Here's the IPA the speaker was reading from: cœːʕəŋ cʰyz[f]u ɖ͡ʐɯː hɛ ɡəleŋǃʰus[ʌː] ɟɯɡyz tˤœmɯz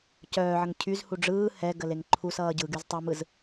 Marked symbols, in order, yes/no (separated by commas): no, yes